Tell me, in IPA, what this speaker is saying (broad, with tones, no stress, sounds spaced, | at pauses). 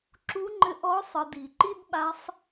ǁ u˧˥ ŋ͡ǃ ɘ˧ ʔ ɔ˧˥ sˤ ɨ˩˧ d i˩ ǃ i˥ d ɓ a˧˥ sˤ